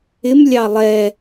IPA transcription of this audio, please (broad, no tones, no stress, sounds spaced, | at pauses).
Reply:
ɪ m lʲ ɑ lˠ ɛ